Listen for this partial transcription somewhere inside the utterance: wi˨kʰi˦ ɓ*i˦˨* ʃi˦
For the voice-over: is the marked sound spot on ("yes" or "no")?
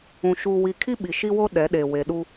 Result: no